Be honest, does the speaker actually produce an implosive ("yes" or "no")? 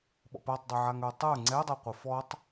yes